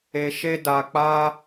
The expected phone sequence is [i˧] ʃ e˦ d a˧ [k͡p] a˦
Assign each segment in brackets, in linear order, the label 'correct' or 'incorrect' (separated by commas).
incorrect, correct